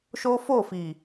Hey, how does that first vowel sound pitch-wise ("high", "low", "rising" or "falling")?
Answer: high